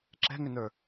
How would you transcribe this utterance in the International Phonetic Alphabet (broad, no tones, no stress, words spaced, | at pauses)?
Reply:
ǁɛ̤ŋʏnə˞